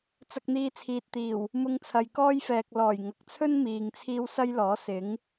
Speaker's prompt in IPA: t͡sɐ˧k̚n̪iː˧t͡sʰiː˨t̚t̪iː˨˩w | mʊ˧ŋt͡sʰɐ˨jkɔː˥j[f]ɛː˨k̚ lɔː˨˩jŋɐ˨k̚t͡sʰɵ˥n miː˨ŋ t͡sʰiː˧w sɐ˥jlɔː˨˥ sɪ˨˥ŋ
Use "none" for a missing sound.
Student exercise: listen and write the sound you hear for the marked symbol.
f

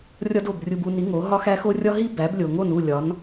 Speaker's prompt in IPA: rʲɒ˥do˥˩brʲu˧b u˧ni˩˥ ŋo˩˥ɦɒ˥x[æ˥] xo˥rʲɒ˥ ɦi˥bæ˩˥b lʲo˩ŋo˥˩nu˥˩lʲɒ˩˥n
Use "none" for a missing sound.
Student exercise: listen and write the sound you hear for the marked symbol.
æ˥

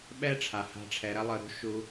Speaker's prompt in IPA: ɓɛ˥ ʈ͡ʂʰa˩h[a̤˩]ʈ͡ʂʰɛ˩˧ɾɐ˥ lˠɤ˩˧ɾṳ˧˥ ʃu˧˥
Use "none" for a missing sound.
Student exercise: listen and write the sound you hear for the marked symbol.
a̤˧˥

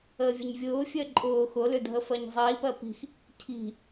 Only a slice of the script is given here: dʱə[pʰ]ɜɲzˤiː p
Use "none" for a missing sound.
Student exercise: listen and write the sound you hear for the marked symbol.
f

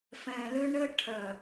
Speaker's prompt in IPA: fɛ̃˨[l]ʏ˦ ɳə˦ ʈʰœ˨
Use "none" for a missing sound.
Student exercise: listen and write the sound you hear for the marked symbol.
l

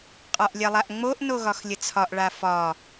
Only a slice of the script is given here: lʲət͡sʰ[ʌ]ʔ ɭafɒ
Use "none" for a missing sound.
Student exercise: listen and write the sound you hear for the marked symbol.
ɒ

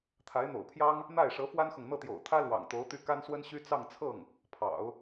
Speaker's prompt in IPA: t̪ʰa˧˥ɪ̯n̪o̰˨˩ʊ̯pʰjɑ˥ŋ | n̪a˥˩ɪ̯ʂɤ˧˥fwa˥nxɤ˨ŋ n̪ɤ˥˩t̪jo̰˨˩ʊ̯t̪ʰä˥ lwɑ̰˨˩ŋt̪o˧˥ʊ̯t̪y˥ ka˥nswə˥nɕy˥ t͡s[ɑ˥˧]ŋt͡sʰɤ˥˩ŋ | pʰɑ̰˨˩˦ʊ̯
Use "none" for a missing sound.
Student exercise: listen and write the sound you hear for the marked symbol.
ɑ˥˧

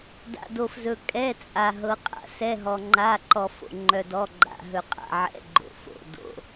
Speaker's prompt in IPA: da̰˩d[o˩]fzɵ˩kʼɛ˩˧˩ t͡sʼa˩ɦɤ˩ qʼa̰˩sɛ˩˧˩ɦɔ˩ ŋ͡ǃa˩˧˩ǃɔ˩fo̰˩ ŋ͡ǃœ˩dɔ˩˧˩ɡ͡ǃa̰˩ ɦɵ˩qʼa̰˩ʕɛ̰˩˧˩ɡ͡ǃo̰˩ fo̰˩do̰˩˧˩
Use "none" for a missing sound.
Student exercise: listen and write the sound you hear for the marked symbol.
o˩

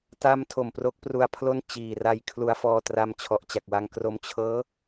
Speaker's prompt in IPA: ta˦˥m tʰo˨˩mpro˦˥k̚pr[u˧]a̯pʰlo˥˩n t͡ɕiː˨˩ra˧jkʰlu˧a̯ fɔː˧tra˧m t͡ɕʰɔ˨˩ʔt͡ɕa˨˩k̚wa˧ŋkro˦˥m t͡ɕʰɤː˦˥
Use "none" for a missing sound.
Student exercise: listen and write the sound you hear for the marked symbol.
u˧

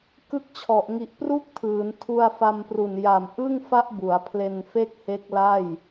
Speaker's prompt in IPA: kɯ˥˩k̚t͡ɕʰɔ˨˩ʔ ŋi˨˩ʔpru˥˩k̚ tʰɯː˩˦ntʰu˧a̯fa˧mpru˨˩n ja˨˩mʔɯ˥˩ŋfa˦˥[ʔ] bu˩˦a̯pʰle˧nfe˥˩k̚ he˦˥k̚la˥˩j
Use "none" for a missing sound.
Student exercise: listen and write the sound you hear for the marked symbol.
ʔ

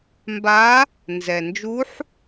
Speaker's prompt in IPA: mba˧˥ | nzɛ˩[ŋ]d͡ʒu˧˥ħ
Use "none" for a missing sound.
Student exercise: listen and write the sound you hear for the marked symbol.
n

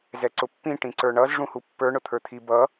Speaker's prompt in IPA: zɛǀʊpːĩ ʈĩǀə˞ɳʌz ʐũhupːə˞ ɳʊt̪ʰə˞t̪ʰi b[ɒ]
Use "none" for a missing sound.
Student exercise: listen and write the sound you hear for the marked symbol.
ʌ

